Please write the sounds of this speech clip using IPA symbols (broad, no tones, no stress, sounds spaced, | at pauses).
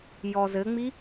j ɔ z ɘ ŋ͡m i